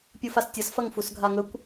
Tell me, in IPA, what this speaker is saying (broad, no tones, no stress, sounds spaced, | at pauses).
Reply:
pʲ u f a s tʲ ɐ s f ɐ ŋ f u s ɡʱ a ŋ ɵ kʷ